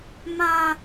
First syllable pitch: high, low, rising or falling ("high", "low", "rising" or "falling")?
high